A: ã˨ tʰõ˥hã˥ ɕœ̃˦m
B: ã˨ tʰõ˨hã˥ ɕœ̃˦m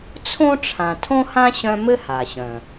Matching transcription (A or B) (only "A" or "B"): A